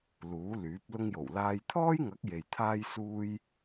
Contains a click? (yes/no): no